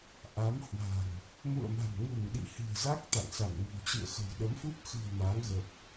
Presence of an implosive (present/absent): present